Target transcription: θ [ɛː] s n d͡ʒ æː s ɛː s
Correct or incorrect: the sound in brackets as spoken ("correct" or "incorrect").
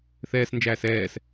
correct